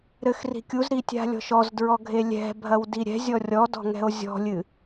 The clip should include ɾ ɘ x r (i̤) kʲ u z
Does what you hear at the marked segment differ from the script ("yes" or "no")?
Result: no